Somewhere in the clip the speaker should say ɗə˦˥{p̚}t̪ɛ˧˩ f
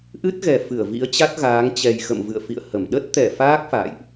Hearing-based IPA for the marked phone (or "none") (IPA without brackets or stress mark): t̚